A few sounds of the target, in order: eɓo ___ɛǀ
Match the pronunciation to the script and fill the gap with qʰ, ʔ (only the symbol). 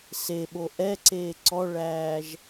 ʔ